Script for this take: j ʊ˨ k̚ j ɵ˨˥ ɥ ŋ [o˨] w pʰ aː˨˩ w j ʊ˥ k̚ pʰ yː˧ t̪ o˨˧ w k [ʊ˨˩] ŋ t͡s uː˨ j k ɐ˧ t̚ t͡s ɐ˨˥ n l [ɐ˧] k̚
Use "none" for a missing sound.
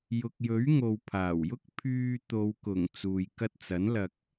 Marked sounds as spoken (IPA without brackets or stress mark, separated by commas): o˨, ʊ˨˩, ɐ˧